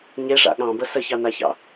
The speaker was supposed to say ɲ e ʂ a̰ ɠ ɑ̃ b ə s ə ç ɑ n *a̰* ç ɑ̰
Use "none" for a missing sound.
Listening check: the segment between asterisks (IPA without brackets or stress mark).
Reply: a